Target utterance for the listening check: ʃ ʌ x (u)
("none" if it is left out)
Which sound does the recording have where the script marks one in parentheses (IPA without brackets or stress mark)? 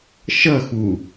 u